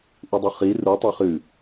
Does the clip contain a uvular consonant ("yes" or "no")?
yes